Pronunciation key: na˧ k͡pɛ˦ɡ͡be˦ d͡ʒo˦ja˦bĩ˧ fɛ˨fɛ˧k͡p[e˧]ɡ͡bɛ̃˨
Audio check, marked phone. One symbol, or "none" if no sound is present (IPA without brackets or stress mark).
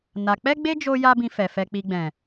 i˧